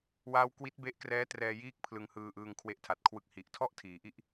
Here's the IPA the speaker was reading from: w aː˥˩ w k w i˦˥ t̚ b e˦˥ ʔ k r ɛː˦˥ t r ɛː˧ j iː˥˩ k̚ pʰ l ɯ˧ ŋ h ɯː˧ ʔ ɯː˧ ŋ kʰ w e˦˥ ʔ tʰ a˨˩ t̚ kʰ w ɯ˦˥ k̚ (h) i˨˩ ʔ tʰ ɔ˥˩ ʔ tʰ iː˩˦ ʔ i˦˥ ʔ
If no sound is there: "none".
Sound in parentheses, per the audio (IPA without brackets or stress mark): h